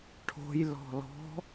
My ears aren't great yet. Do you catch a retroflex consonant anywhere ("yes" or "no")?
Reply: yes